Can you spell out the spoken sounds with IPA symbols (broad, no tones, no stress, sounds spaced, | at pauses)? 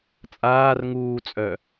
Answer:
t͡sʼ aː r ŋ uː t͡sʼ œ